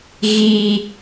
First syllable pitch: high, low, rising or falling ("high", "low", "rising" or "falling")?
high